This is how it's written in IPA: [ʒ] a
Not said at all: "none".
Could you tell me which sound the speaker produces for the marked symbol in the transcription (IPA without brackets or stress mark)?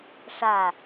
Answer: ʂ